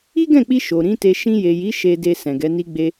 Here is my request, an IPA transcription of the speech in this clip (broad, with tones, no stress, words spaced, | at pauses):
i˦ɡɛ̃˦˨k͡pi˧ ʃo˨ɾĩ˨˦te˧ ʃĩ˧je˨ji˨˦ ʃe˧de˧ sɛ̃˨ɡɛ˨˦ni˦ɡ͡be˦